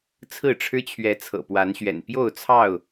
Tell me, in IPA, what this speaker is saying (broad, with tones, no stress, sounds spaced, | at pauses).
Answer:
t͡sʰ ɹ̩˥˨ ʈ͡ʂʰ ɻ̩˦ t͡ɕʰ ɥ ɛ˨˦ t͡sʰ ɤ̰˨˩ p w a˨˦ n ɕ ɥ ɛ̰˨˩ n p j o˥˨ ʊ̯ t͡sʰ ɑ˥˨ ʊ̯